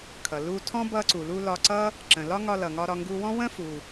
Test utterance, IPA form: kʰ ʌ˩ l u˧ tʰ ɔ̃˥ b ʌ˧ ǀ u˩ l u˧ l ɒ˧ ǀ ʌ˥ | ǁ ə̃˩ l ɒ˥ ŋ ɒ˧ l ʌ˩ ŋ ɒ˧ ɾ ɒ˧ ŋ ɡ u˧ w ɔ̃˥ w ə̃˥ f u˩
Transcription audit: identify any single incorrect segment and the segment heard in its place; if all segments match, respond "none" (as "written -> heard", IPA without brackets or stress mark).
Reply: none